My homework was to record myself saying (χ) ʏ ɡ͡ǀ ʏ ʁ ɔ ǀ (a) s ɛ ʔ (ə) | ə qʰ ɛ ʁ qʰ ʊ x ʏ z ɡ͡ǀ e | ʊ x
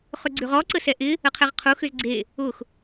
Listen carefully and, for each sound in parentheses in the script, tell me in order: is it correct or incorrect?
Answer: correct, incorrect: ə, incorrect: ɪ

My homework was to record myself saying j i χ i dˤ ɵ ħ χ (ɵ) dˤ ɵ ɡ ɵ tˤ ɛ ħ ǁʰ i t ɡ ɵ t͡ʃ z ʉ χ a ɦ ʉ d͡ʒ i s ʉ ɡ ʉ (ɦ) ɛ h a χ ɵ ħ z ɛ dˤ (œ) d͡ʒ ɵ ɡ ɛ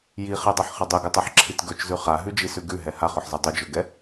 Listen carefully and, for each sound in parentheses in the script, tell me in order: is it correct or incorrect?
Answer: incorrect: ə, correct, incorrect: ɵ

